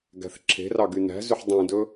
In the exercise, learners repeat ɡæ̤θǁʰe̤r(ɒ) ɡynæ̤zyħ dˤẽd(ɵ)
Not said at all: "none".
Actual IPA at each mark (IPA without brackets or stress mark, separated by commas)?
ɑ, ɵ